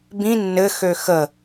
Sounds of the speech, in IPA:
b ĩ nː ɘ x ø x ə

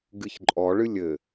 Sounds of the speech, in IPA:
ɡ ɨ ç ǃʼ ɔ ɭ ɨ lʲ ɘ

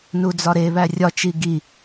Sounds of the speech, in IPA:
n u d͡z ɒ ɾ e β æ rʲ ɒ t͡ʃ i ɡ i

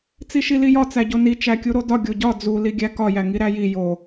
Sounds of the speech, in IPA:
t͡s i ʃ i l i j ɒ t͡s æ ɟ o n i t͡ʃ æ kʲ u ɾ o d ɒ ɡʲ o ɟ ɒ d͡z u l i ɡʲ æ k ɒ j æ ŋ i ɾ æ j i j o

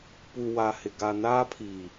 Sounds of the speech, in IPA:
p u˨ w a˨ h ɪ˨ ɡ a˨ n aː˦ pʰ iː˨

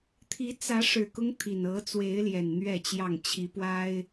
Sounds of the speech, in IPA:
t̪ʰ i˨˦ t͡s ä˨˦ ʂ ɻ̩˨˩ k ʊ˦ ŋ t̪ʰ i˨˩ n ɤ˨˦ t͡s w e˨˦ ɪ̯ l j ɛ˨˩ n n̪ ɥ ɛ˥˨ t͡ɕ j ɑ˥˨ ŋ t͡ɕʰ i˨˦ p w a˦ ɪ̯

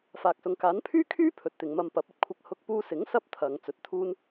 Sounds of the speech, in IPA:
f aː˨ k̚ s ʊ˨ ŋ k aː˨˥ n pʰ yː˥ kʰ yː˥ pʰ ɵ˨ t̚ t̪ ɪ˨˧ ŋ m ɐ˧ m p ɐ˨˥ p̚ ɐ˨ t̚ kʷʰ ɐ˧ k̚ h ʊ˧ k̚ p uː˧ s ɪ˨˥ ŋ s ɐ˥ p̚ t̪ʰ ɐ˨ ŋ t͡s ɵ˨˥ t̚ t̪ʰ uː˥ n

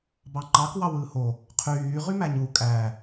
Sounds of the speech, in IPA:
b ɑ ŋ͡ǃ ɑ k w ɑ w ɯː h o | qʰ yː ʁ y m æ ɲ u kʼ æ

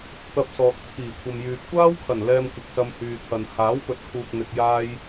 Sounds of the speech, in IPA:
t̪ ɐ˧ p̚ s ɔː˨ k̚ t͡sʰ iː˨˩ kʷʰ ɐ˨ m j yː˨ p̚ kʷ aː˥ w kʰ ɐ˨˩ n l ɛː˧ m kʷ ɪ˨ k̚ s ɐ˧ m h yː˨ t̪ʰ ɐ˨ n h aː˨˥ w p ɵ˨ t̚ kʰ uː˨ k̚ n̪ ɪ˨ k̚ j aː˥ j

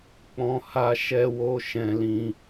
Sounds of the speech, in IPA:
k͡p ɔ̃˦ h a˦ ʃ ɛ˦ w o˦ ʃ ɛ̃˦ l ĩ˦

